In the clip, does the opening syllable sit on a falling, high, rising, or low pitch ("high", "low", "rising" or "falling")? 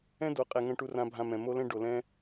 high